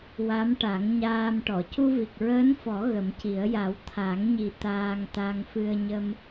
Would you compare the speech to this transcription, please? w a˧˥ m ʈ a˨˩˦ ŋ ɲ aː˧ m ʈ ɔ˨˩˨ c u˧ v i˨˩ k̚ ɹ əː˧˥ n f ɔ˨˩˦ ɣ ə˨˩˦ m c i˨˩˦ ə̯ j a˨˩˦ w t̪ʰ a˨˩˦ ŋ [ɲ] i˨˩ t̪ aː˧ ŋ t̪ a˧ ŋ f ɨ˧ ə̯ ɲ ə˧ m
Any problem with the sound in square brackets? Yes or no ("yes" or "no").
no